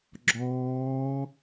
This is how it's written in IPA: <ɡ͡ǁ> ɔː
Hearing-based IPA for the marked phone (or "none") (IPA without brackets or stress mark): ɡ͡ǁ